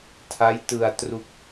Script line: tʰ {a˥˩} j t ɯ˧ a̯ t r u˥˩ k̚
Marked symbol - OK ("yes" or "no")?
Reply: no